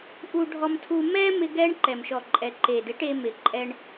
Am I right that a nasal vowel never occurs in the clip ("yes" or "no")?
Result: yes